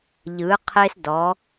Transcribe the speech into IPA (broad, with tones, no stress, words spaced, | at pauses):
ʎɯ˨˦qʰe˦sdɔ˨˦